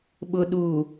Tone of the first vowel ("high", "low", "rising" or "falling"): low